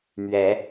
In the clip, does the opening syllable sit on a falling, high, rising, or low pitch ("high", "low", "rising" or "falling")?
rising